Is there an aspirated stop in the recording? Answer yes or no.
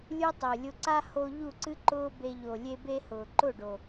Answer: no